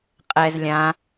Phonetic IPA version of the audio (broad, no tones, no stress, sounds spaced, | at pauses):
qʼ ɛ z lʲ ã